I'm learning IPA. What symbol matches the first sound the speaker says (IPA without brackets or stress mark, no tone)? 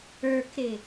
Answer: ə˞